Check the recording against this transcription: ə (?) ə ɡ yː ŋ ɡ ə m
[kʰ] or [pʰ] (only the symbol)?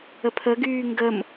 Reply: pʰ